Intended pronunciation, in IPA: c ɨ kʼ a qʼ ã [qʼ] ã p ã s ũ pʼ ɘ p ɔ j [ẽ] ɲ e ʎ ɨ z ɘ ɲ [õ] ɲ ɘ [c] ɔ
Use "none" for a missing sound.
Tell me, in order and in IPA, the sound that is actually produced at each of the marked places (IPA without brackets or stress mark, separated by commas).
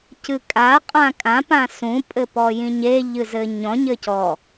kʼ, ĩ, ɔ̃, c